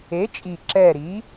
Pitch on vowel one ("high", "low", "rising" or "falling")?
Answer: rising